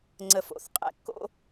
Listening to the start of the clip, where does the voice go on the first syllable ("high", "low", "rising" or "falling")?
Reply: low